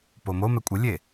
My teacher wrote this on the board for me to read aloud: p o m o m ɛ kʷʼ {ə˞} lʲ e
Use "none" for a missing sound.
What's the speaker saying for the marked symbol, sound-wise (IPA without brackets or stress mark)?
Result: ə